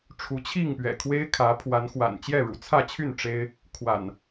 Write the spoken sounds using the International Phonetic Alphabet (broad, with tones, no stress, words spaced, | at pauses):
ʈ͡ʂʰu˨˦t͡ɕʰi˥˨ŋpɥɛ̰˨˩ kʰwe˦ɪ̯kʰä˨˦pʰwa˨˦nxwa̰˨˩n t͡ɕjɛ˥˨ɻṵ˨˩t͡sʰä˥˨t͡ɕʰy˥˨n ʈ͡ʂe˦ɪ̯ | kʰwa̰˨˩n